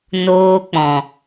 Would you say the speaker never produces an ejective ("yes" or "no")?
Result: yes